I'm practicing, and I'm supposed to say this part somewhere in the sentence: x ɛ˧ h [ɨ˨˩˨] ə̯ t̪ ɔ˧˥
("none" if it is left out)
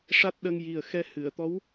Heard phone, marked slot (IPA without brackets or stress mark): ɨ˨˩˨